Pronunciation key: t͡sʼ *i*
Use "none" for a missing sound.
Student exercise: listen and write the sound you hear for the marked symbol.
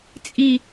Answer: i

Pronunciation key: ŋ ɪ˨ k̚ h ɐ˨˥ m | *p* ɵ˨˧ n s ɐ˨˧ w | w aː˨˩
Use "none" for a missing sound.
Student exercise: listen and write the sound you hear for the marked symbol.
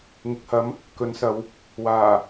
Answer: k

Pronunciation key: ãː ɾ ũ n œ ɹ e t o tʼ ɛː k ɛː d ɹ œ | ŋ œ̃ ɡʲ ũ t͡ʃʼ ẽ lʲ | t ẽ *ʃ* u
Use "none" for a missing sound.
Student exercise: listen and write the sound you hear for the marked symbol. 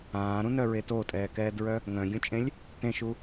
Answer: ʃ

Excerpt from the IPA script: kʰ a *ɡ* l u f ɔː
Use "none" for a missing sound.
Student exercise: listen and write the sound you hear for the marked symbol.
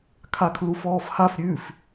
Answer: kʰ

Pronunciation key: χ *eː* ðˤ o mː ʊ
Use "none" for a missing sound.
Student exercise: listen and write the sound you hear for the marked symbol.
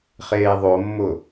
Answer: eː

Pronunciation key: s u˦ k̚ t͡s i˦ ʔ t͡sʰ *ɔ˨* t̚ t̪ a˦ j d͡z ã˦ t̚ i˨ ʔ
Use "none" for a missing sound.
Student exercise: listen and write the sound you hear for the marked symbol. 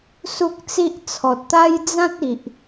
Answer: ɔ˨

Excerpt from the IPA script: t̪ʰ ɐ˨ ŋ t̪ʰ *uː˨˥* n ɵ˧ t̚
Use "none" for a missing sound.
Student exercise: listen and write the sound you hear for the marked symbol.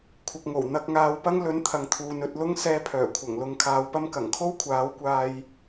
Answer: uː˨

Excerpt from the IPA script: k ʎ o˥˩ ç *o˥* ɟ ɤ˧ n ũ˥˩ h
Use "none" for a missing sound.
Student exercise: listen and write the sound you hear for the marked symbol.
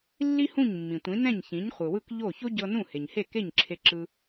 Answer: o˥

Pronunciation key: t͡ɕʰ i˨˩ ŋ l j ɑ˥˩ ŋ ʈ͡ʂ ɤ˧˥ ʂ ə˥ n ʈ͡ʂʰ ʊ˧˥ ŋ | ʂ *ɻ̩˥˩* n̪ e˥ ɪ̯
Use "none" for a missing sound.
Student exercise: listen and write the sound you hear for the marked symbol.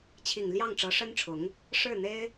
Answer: ɻ̩˥˩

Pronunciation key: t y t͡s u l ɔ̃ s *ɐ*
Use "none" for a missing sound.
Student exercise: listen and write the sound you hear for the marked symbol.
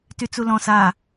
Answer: a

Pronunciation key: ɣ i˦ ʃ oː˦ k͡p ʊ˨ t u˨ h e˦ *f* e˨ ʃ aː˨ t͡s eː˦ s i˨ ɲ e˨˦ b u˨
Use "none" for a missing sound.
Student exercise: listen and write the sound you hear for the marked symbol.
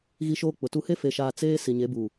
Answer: f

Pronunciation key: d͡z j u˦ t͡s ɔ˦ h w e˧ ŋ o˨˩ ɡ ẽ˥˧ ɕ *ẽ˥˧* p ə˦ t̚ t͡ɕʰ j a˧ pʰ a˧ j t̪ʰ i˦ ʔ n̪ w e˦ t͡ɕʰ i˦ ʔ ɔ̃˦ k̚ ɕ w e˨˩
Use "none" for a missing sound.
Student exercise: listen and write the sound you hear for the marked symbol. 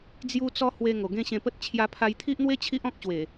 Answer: ẽ˧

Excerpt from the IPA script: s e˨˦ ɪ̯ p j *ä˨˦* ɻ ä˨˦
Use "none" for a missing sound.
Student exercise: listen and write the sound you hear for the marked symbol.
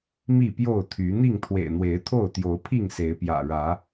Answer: ä̰˨˩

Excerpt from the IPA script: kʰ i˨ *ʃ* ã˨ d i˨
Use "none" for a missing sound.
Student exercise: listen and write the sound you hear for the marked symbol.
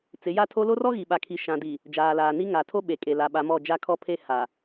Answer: ʃ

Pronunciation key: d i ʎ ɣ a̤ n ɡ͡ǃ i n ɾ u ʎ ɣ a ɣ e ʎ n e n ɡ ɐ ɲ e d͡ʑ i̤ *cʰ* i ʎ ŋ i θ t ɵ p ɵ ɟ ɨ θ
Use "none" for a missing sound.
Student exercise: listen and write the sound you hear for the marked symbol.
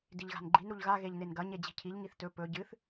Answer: cʰ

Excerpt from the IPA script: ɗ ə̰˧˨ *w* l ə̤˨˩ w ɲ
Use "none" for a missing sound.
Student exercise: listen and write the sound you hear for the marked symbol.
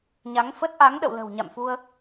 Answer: w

